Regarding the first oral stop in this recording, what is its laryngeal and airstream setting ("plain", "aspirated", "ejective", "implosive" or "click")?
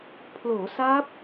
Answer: aspirated